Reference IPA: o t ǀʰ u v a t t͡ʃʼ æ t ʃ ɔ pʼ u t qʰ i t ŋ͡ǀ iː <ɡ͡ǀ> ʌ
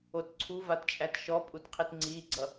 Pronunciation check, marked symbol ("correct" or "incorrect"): correct